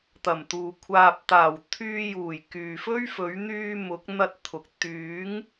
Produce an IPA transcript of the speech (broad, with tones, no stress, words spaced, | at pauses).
t̪ɐ˨˩mt̪uː˨ kʷʰaː˨p̚t̪aː˨˩w t̪ʰyː˧juː˨˩j kyː˨fɵ˥ɥfɵ˨˥ɥ n̪yː˧ mʊ˨˥k̚n̪ɐ˧t̚t̪ʰʊ˨k̚ t̪yː˨˥ŋ